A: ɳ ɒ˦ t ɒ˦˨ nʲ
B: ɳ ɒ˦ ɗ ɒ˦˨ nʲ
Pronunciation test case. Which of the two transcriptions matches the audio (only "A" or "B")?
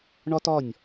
A